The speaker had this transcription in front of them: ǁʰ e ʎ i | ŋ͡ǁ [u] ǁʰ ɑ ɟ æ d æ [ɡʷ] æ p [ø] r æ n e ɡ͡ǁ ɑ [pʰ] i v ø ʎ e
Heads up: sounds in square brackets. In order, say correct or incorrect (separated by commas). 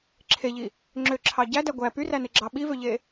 incorrect, correct, incorrect, incorrect